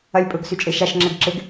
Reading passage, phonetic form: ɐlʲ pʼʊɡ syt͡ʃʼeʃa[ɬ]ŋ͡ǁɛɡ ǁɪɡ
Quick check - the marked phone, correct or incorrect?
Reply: incorrect